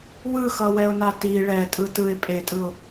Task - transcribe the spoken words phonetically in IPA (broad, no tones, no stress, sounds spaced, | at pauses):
w ɯ x ʌ w ɛ ʊ̯ n a t i ɭ ɛ tʼ ɯ t ɯ ɪ̯ pʼ e tʼ ɯ ʊ̯